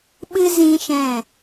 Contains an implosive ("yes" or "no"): yes